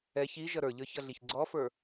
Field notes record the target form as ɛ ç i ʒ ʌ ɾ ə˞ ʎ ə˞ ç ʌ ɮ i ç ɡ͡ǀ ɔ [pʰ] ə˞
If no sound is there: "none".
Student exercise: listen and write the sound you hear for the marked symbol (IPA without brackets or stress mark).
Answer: f